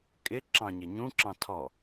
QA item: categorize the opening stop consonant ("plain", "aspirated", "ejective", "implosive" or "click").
ejective